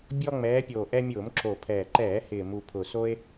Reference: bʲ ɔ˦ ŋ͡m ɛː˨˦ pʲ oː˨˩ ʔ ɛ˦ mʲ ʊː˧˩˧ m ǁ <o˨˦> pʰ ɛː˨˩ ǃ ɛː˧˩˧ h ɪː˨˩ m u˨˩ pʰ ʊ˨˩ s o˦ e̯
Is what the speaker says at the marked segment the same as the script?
no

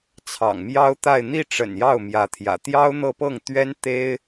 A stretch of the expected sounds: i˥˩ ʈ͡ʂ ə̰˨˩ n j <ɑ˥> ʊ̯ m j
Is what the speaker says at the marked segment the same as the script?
no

